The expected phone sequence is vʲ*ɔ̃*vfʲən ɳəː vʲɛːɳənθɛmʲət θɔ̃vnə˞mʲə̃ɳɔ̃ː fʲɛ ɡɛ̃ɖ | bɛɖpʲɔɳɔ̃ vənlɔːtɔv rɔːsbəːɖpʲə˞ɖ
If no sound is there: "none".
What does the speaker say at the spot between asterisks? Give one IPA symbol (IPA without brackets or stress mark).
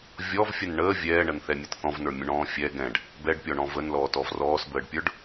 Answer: ɔ